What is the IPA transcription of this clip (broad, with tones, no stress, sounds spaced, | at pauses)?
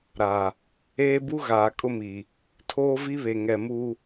ɾ a˨ | eː˦ b u˦ ɣ aː˨ kʼ ʊ˦ m i˨ | tʰ oː˦ v i˦ β e˨ ŋ ɛ˨ m u˦